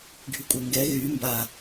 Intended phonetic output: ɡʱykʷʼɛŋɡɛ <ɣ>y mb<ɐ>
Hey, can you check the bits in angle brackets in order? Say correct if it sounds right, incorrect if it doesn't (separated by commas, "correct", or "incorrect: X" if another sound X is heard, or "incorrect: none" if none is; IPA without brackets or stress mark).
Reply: correct, incorrect: a